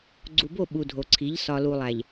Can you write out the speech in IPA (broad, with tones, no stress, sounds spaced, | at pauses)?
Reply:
ɡ͡ǀ u˨ b o˦˨ ɓ u˨ dʱ o˨ ǀʰ i˨˦ ʎ s ɒ˨ l u˨ lˠ æ˨ ʎ